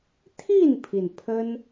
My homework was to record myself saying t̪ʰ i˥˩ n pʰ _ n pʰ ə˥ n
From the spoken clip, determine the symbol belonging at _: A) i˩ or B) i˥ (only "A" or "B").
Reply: A